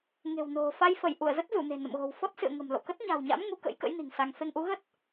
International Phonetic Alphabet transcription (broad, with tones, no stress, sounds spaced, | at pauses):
ŋ e̤˨˩ w n o̤˨˩ f a˧ j f ə˧˩ j ʔ u˧˩ ə̯ z ə˦˥ t̚ z u˧˩ n e̤˨˩ n ə̰˧˨ m ɣ o̤˨˩ w f ɔ˦˥ t̚ s ɨ̰˧˨ ə̯ ŋ ə̤˨˩ m l o̰˧˨ k ə˦˥ t̚ ɲ a̤˨˩ w ɲ a̰˧˥ m ŋ u˨˦ k ə̰˧˥ j k ə̰˧˥ j n i̤˨˩ ŋ s a˧ ŋ f e˧ ŋ ʔ u˨˦ ɣ ə˦˥ t̚